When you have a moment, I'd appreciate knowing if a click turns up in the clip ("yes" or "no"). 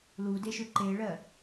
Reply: yes